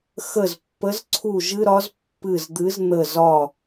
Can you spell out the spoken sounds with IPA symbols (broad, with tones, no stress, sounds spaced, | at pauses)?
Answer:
x ə˦˨ z pː ə˧˥ z ǀʰ u˦˨ ʒ ɨ˥ ɾ ɒ˧˥ z pː ɨ˦˨ z d̪ ɨ˧˥ z n̪ ə˦˨ z ɒ˦˨